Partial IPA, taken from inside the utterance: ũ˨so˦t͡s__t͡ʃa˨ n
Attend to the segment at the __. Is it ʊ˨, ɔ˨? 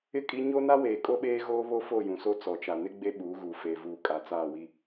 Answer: ɔ˨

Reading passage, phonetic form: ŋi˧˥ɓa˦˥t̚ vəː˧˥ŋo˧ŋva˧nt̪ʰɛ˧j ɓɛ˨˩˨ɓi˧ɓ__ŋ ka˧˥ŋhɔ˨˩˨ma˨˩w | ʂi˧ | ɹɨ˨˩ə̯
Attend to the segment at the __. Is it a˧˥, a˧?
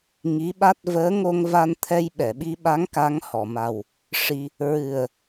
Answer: a˧˥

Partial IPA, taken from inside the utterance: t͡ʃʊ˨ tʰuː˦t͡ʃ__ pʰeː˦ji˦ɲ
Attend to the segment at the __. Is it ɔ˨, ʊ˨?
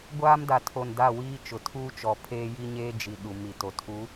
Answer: ɔ˨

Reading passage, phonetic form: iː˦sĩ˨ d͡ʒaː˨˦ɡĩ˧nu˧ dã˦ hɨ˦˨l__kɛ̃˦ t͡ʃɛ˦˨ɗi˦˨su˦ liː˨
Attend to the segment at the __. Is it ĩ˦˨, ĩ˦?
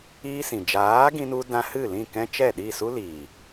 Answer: ĩ˦˨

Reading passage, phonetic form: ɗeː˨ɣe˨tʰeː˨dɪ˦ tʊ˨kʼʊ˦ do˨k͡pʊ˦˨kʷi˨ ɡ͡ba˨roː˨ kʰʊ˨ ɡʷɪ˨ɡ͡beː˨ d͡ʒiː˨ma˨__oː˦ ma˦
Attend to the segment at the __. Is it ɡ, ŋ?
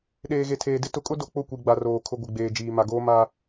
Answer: ɡ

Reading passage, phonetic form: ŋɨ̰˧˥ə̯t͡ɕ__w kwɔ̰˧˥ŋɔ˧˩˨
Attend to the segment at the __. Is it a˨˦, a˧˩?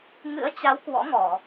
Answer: a˨˦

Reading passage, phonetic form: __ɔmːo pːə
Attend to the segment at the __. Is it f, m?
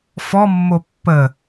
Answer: f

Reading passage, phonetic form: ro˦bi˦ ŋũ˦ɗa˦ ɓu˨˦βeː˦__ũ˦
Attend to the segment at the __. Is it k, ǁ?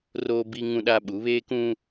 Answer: k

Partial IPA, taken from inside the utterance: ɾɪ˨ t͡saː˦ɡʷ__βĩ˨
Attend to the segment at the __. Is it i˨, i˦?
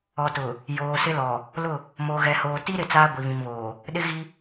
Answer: i˨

